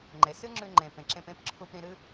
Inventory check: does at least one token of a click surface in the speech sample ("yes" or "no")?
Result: yes